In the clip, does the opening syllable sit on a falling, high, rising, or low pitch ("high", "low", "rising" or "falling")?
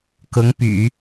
rising